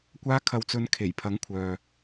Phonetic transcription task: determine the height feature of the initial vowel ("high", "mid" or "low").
low